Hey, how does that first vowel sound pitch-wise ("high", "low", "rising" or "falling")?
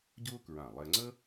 high